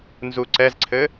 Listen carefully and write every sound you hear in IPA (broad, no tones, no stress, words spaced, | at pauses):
nzuǀɛzǀʰɘ